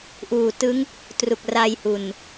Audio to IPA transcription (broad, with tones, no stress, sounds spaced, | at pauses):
ʔ uː˨˩ t ɯ˦˥ ŋ | t r u˨˩ k̚ r a˧ j h u˨˩ n